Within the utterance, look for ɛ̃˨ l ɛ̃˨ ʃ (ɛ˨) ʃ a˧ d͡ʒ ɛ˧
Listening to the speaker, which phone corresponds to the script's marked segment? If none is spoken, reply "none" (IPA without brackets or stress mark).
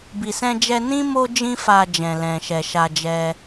ɛ˨